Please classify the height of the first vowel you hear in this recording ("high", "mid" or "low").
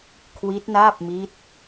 high